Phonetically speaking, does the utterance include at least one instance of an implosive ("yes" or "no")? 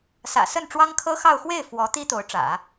no